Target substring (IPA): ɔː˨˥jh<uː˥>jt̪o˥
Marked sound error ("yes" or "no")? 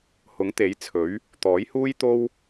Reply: no